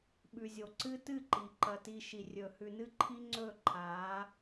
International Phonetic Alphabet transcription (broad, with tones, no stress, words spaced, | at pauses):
ɓʉ˨zʲo˨ ǀɨ˦tɨ˦˨ǃi˨ ǃɐ˨ti˨ ʃi˨rʲɵː˨ hʉ˨nɨ˦ǃʰi˦ ŋ͡ǀɵː˦˨ǃʰaː˨˦